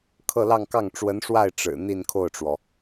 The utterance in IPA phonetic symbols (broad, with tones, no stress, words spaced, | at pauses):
kʰɤ˥˧lɑ˥˧ŋkɑ˥˩ŋ ʈ͡ʂwə˧˥nʂwa˥˩ɪ̯ ʈ͡ʂɻ̩˨˩ n̪i˥˧nkʰo˥˩ʊ̯ʈ͡ʂwɔ˩